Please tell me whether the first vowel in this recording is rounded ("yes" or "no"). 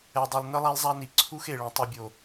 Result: no